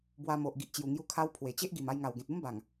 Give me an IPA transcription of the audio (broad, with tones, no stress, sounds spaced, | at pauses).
b w a˧ m o˨ ʔ ɡ i˨ ʔ t͡ɕ j u˨˩ ŋ j u˧ kʰ a˧ w pʰ w e˨˩ t͡ɕ e˦ ʔ ɡ i˨˩ m a˧ j ŋ a˨˩ w ɡ ẽ˨ t̚ u˦ m b a˨˩ ŋ